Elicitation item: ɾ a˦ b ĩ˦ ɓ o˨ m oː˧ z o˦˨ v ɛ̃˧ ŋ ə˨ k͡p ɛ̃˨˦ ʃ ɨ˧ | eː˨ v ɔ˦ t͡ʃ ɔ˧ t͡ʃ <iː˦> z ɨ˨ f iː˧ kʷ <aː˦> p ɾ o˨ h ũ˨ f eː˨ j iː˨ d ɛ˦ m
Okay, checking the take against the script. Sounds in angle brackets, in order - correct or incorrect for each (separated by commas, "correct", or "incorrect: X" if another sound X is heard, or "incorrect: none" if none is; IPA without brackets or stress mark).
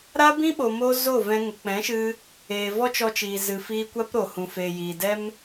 incorrect: iː˨, incorrect: a˦